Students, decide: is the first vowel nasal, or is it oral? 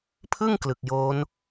oral